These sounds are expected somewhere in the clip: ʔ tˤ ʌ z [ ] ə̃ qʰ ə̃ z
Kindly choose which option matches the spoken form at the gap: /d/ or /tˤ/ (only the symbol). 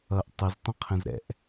tˤ